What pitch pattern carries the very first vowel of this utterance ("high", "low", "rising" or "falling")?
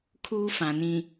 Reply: high